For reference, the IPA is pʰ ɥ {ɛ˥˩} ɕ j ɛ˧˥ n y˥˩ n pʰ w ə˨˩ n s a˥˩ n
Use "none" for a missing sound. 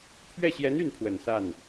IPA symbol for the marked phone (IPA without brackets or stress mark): ɛ˥˩